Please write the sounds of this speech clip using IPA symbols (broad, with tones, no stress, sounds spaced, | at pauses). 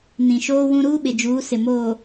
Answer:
n ĩ˨ ʃ oː˦ w ũ˦ ɾ uː˦ ɓ ɪ˨ d͡ʒ uː˨˦ s ɪ˨ m oː˨